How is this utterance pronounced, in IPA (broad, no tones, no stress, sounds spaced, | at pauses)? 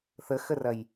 θ ə x ə r ɐ j